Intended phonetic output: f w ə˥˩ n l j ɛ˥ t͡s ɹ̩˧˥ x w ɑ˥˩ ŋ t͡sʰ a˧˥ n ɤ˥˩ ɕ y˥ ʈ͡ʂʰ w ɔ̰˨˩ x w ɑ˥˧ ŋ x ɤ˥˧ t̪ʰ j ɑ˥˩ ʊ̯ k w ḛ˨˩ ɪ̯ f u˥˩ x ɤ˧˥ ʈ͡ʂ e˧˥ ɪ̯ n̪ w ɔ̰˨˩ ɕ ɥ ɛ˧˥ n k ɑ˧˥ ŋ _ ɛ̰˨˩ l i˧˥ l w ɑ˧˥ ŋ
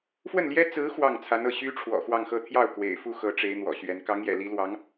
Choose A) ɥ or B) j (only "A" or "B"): B